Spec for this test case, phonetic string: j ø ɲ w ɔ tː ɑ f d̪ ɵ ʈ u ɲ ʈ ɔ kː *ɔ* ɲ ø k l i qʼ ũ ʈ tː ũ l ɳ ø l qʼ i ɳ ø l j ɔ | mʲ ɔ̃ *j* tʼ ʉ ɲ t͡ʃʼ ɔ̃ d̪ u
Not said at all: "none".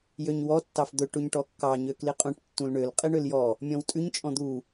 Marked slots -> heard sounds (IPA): ɑ, w

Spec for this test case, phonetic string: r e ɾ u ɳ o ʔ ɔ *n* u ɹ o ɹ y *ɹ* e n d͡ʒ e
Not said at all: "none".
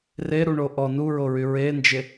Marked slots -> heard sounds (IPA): n, ɹ

